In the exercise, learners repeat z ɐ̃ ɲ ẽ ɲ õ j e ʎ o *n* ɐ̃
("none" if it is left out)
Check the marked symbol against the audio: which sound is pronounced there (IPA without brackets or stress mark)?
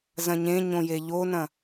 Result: n